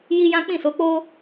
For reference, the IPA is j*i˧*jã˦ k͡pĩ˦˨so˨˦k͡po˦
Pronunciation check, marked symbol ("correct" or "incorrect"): incorrect